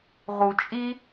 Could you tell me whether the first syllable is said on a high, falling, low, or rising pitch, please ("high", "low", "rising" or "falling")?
low